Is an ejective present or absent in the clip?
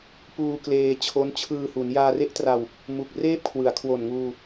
absent